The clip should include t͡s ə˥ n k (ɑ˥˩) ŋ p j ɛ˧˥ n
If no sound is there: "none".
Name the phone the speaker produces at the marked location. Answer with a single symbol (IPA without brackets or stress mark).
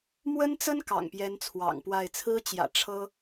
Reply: ɑ̰˨˩